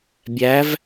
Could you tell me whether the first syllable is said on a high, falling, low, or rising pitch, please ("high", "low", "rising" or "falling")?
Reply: rising